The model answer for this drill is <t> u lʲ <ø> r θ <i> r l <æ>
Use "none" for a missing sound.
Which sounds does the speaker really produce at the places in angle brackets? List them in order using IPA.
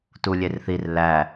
t, e, i, æ

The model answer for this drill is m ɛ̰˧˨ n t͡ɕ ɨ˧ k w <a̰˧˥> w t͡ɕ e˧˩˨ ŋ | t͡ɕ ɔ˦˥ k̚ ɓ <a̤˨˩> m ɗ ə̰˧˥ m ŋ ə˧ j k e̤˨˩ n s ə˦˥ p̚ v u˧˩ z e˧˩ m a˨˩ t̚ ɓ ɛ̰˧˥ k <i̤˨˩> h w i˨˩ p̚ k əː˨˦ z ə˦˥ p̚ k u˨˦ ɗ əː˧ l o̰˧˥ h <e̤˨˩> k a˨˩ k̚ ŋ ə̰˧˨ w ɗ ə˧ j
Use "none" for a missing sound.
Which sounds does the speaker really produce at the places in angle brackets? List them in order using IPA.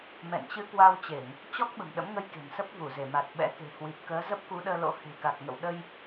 a˧, ə̤˨˩, e̤˨˩, e̤˨˩

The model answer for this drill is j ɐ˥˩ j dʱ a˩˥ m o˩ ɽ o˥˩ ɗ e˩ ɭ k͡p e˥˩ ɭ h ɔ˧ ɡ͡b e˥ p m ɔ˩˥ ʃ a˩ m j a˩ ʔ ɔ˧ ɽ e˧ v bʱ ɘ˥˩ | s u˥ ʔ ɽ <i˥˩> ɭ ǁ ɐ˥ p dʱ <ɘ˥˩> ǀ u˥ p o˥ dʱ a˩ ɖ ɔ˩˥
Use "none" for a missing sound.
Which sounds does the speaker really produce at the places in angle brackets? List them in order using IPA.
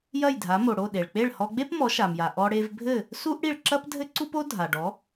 i˥˩, ɘ˥

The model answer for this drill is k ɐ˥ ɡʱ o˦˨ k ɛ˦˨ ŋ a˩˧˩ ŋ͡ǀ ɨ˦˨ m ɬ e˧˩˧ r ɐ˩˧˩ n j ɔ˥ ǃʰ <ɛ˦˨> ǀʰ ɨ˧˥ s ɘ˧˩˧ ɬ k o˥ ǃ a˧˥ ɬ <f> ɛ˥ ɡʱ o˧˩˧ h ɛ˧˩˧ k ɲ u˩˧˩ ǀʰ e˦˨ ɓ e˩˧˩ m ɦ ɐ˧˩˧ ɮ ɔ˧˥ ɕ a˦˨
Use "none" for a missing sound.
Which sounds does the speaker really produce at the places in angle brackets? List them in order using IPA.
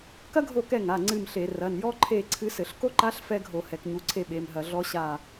e˦˨, f

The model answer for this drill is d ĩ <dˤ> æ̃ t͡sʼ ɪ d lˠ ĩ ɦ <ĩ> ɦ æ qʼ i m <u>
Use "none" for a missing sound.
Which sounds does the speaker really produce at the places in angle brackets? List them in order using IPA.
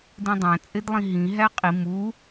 dˤ, ĩ, u

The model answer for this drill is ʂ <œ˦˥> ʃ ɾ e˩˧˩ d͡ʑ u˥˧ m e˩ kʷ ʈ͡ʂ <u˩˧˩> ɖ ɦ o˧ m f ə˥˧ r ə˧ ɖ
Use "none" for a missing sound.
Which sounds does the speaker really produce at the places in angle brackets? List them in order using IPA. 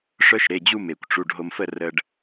œ˦˥, u˩˧˩

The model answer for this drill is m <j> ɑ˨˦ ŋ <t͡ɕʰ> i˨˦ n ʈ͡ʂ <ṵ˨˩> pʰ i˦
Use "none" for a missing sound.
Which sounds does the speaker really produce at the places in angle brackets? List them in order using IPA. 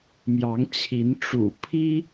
j, t͡ɕʰ, ṵ˨˩

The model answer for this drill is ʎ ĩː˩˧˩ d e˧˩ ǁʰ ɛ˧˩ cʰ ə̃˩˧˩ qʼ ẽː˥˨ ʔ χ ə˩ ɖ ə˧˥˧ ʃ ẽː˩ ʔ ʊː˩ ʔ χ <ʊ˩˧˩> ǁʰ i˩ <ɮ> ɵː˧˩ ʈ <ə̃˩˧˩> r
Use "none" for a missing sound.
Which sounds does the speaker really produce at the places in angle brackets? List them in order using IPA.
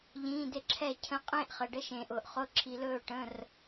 ʊ˩˧˩, l, ə̃˩˧˩

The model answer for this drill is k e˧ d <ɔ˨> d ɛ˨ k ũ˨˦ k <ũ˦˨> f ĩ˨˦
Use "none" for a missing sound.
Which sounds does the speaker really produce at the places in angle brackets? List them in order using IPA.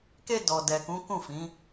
ɔ˨, ũ˦˨

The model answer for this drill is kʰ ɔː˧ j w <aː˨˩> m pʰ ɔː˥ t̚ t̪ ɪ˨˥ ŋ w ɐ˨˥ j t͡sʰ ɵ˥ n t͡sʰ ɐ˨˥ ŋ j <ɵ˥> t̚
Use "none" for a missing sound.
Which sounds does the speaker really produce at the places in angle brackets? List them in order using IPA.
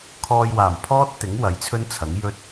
aː˨˩, ɵ˥

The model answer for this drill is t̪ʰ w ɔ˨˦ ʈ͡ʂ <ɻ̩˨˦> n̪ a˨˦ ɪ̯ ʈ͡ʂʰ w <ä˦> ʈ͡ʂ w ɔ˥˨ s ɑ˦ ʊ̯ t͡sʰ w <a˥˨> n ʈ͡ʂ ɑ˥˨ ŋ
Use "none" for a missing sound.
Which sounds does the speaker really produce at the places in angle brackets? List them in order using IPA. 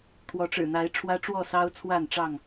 ɻ̩˨˩, ä˦, a˥˨

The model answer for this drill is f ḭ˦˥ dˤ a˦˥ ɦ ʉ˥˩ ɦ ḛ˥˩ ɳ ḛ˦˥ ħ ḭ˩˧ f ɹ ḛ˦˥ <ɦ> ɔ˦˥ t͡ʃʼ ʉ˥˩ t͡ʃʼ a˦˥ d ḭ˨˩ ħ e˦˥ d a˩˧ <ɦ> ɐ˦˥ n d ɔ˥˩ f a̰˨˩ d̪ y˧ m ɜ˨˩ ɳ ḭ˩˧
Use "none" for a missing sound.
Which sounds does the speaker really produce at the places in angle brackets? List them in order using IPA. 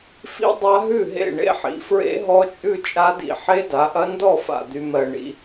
ɦ, ʔ

